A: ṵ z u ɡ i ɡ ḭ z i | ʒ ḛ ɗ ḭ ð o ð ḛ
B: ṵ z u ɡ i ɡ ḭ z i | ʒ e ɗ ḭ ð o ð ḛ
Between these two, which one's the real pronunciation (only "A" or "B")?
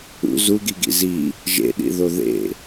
A